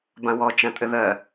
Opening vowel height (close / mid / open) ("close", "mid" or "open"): open